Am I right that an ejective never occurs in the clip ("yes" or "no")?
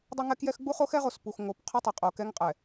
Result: no